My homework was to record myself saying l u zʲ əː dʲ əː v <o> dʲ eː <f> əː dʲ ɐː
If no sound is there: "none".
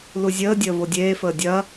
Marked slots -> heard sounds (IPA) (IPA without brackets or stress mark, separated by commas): o, f